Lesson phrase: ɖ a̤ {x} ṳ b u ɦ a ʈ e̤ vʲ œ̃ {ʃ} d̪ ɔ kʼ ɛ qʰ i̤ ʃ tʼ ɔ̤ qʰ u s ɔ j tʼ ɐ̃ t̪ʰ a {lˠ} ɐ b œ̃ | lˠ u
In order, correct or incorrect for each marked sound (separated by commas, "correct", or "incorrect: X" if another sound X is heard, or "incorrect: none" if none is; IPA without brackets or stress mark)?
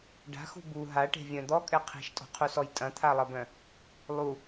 correct, incorrect: none, correct